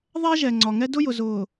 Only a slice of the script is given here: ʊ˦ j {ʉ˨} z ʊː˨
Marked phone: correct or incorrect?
incorrect